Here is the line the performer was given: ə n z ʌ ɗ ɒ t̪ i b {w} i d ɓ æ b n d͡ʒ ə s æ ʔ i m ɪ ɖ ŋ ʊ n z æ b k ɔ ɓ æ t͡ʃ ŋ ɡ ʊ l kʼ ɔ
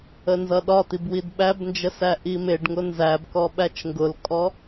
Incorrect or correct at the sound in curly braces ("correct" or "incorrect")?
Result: correct